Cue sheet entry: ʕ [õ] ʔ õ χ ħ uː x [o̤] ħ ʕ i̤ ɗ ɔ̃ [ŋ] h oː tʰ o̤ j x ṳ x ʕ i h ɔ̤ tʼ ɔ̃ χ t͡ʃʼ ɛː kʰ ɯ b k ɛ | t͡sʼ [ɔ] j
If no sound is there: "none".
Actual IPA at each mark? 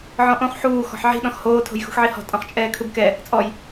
ɔ̃, ɔ̤, x, ɔ

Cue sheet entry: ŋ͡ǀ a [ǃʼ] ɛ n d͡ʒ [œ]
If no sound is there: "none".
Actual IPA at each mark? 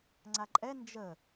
ǃʼ, ə

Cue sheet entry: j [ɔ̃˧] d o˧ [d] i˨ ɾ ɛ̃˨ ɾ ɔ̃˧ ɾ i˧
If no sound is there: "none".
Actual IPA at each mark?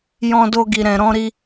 ɔ̃˧, ɡ

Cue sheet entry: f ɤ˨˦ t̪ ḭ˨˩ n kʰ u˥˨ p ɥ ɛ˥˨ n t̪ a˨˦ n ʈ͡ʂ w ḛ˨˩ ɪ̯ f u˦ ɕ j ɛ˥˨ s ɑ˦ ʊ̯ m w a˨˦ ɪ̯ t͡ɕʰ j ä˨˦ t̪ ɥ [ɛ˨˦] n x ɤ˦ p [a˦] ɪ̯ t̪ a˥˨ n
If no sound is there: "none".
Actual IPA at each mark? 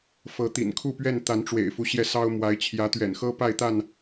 ɛ̰˨˩, a˥˨

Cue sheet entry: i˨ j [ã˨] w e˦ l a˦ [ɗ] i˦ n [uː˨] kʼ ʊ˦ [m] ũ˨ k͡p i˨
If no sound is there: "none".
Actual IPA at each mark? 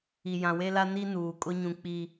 ã˨, n, uː˨, ɲ

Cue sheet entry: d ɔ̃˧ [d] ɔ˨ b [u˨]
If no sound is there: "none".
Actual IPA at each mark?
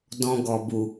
ɡ, u˨

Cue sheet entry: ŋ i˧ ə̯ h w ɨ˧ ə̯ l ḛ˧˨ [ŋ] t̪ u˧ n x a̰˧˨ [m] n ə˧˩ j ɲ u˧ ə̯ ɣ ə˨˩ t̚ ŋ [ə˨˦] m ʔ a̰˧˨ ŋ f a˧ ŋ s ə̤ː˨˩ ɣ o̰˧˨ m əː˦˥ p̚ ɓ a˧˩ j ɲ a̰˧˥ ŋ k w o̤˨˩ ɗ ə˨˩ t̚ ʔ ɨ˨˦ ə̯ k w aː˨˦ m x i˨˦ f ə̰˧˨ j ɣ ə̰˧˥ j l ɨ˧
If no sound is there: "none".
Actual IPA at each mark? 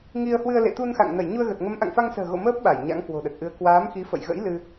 none, ŋ, ə˨˦

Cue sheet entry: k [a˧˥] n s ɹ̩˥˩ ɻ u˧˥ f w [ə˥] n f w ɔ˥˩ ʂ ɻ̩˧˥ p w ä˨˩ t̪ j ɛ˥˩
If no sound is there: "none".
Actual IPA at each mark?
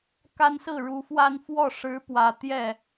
a˥, a˥

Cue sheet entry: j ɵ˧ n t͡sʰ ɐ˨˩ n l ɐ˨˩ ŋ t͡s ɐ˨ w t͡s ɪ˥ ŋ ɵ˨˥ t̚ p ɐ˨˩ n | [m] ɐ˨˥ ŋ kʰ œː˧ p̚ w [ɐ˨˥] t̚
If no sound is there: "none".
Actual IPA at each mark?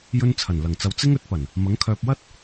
m, ɐ˥

